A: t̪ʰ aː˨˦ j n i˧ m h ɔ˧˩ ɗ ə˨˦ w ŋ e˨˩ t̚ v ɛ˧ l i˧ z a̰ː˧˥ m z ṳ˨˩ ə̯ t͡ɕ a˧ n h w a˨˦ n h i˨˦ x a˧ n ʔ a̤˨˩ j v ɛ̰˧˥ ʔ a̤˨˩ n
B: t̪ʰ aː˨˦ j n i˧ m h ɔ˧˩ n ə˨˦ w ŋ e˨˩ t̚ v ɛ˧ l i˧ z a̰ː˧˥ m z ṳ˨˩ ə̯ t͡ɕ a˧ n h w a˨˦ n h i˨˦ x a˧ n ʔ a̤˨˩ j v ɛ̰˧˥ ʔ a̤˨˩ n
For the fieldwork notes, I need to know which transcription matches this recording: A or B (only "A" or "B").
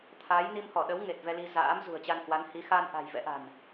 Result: A